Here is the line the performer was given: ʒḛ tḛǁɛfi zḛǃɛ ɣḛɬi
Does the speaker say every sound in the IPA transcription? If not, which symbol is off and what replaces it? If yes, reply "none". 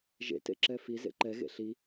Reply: none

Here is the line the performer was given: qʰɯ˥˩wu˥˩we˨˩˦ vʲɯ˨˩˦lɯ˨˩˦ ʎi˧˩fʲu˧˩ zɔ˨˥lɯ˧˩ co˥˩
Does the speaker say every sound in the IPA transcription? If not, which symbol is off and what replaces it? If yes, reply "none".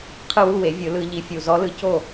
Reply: none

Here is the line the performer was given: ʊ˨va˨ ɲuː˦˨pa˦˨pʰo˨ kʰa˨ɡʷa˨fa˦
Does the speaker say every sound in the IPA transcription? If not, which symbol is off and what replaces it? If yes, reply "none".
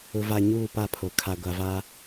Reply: f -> v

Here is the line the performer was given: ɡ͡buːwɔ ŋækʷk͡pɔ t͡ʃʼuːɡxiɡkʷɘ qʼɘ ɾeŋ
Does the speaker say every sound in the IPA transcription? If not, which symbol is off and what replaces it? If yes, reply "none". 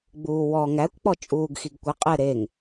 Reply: none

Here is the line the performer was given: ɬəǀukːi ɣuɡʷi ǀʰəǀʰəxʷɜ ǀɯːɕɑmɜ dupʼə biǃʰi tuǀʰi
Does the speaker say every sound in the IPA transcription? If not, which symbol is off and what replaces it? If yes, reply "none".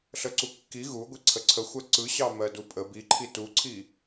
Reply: ɯː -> ɯ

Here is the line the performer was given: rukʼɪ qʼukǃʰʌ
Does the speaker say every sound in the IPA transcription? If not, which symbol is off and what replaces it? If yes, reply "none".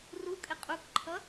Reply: none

